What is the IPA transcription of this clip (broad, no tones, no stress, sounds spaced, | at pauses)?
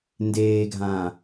n d eː ɡʱ ã